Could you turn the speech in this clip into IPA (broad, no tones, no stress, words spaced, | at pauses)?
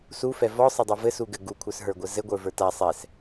sufɛ vɔsˤɘdˤi vɘsuɡɘ ɡukʷʰə˞s ɦə˞ɡʷɘzɘɡʷə˞ və˞ta sˤɛs